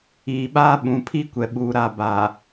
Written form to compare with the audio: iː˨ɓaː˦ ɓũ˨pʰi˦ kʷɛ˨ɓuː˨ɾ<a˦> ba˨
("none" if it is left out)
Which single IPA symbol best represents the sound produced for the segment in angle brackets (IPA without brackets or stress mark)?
a˦˨